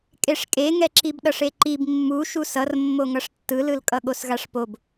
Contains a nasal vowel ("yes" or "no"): no